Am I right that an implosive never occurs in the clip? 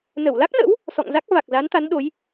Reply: no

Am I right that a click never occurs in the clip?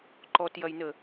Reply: no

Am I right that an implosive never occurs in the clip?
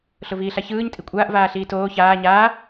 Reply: yes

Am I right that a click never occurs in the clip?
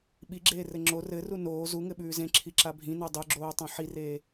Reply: no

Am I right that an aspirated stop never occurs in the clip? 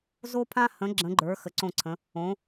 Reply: no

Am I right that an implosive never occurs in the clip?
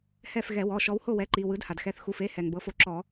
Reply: yes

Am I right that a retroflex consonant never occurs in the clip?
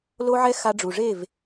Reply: no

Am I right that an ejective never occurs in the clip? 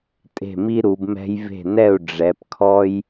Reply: no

